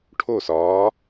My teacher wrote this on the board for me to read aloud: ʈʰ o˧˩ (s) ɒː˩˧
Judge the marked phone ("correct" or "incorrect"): correct